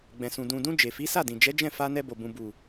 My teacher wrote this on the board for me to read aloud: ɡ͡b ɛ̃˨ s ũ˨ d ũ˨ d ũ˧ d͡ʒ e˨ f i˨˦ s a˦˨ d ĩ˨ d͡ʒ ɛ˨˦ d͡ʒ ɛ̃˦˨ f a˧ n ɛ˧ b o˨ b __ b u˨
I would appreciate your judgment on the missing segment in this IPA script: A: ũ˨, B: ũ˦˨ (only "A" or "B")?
A